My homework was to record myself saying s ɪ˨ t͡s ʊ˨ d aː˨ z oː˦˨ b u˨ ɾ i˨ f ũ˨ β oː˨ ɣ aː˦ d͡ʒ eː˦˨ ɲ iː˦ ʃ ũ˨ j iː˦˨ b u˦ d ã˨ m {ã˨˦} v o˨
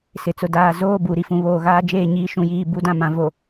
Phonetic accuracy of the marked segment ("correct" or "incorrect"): correct